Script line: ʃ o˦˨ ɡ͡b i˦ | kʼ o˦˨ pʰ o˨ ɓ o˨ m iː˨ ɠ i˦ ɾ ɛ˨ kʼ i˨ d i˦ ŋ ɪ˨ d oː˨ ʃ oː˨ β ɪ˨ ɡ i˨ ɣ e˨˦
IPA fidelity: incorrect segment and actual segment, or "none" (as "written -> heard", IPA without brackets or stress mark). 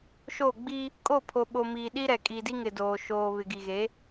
ɠ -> ɗ